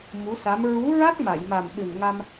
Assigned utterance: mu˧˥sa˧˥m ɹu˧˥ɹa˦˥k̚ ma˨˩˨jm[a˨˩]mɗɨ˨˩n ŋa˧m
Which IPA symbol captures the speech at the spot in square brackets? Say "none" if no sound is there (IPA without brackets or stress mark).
a˨˩